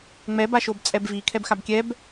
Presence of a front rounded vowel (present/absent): absent